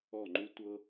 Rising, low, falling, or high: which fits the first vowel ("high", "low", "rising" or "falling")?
falling